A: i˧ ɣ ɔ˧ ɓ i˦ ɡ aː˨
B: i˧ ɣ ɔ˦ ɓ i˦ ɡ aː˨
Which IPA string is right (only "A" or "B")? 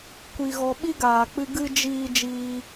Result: A